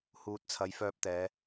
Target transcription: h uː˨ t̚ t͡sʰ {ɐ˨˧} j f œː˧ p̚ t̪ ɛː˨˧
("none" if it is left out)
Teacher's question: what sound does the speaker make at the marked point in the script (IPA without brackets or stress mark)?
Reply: ɐ˨˧